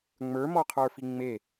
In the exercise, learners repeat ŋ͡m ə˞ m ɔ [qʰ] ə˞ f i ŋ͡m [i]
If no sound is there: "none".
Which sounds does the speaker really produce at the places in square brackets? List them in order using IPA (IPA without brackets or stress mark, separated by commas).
qʰ, e